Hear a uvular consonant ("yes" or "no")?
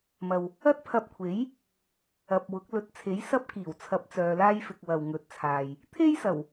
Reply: no